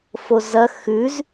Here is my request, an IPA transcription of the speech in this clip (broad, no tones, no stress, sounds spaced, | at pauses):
f o z ɐ x ʉ z